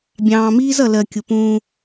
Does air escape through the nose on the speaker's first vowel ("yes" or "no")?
yes